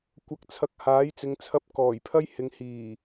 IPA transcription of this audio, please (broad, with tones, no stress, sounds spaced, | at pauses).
kʷ ɐ˨˥ k̚ t͡sʰ ɐ˨˥ k̚ h aː˨˥ j t͡s ɪ˨˧ ŋ t͡sʰ ɐ˧ p̚ k ɔː˨˩ j pʰ ɐ˥ j h ɪ˨˧ ŋ h iː˨˩